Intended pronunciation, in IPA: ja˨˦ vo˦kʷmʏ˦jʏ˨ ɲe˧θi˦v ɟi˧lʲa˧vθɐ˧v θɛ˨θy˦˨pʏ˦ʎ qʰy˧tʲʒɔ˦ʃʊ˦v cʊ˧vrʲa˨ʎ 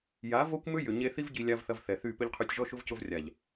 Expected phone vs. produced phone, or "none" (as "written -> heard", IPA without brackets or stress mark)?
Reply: none